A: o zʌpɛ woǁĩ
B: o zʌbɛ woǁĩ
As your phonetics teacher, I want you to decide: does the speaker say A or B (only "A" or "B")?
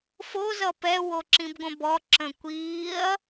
A